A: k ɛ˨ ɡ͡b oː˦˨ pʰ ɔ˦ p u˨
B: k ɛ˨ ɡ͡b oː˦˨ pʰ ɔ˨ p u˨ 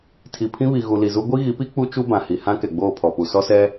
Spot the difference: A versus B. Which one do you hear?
B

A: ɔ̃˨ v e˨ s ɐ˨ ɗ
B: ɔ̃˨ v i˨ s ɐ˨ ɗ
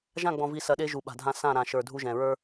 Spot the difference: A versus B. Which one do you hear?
B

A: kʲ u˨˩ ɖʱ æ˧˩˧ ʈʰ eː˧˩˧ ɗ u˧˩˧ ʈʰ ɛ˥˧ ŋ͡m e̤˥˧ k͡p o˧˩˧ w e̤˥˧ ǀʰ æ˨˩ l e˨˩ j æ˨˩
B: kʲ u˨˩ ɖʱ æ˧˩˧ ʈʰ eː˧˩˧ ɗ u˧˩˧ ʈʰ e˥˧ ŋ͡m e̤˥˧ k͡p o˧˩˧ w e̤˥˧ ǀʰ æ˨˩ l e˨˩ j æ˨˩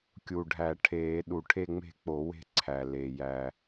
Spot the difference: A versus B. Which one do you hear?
B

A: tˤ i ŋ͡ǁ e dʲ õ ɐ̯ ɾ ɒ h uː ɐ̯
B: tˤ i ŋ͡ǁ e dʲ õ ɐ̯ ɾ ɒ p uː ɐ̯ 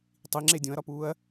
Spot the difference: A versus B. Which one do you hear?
B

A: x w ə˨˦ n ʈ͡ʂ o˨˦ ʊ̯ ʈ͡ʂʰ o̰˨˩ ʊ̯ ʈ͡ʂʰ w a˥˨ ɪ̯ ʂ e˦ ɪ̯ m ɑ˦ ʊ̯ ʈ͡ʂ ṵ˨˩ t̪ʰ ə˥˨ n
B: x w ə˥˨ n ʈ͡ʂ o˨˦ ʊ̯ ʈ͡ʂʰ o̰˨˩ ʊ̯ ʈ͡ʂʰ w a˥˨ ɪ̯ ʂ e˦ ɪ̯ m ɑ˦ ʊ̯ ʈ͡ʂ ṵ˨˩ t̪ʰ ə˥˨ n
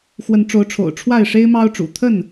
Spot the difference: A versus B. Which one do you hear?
A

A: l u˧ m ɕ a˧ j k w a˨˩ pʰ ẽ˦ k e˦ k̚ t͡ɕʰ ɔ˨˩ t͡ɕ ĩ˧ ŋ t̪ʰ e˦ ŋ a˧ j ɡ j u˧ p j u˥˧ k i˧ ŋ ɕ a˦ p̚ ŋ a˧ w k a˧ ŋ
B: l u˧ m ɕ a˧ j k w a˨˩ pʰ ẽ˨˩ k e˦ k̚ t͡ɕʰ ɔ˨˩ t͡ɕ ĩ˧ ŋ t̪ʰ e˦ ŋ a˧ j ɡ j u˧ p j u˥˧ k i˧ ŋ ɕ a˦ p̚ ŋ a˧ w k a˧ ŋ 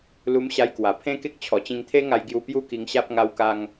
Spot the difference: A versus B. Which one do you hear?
A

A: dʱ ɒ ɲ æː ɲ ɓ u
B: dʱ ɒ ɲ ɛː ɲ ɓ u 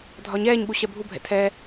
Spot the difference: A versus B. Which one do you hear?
B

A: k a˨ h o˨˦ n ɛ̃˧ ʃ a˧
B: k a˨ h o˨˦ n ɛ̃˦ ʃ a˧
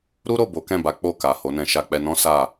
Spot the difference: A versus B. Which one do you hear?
A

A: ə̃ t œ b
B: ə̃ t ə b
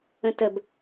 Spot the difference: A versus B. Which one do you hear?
B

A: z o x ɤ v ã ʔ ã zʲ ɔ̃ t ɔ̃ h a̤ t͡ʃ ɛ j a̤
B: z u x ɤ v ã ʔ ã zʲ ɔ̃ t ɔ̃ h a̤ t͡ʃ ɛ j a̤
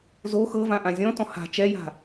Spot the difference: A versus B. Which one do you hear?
A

